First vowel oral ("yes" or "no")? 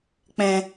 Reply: no